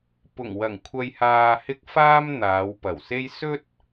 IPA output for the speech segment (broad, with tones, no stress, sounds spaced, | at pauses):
p ʊ˨˩ ŋ w ɐ˨˩ ŋ kʷʰ ɐ˨ j h aː˨ h ɪ˧ k̚ f aː˥ m n̪ aː˨˧ w p ɐ˨˩ w s e˥ j s ɵ˥ t̚